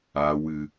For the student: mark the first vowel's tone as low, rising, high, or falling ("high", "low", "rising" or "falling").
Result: low